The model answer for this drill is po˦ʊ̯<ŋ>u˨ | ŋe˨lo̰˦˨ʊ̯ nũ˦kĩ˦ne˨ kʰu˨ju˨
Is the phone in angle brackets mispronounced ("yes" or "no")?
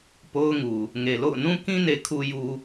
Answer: no